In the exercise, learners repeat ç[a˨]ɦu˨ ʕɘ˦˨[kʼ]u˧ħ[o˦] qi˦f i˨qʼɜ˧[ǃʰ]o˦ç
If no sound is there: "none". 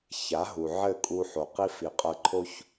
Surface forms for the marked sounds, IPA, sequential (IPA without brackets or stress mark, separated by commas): a˨˦, kʼ, o˨, ǃʰ